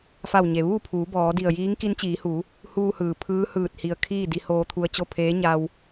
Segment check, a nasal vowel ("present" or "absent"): absent